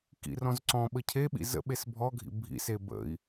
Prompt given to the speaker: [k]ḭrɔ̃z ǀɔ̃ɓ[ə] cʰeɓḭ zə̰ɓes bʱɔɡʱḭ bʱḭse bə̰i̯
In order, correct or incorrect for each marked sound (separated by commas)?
correct, correct